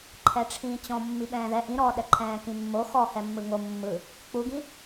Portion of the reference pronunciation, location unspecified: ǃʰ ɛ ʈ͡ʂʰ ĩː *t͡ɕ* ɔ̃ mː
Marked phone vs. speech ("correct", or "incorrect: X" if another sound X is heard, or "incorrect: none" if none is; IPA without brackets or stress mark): correct